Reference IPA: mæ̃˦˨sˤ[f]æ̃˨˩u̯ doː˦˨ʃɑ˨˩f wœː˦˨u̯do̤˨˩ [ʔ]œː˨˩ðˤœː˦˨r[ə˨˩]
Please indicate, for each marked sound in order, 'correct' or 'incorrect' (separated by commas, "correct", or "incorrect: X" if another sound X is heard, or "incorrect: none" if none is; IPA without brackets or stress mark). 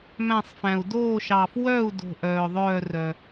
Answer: correct, correct, incorrect: œ˨˩